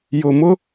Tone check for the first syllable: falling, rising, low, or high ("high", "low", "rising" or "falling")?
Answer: low